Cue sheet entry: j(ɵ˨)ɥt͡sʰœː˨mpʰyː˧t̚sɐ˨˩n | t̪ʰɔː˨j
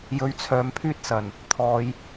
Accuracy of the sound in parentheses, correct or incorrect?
incorrect